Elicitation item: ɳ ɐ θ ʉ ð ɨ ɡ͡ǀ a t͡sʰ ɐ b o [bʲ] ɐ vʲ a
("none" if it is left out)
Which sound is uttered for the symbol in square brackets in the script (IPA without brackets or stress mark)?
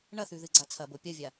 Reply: pʲ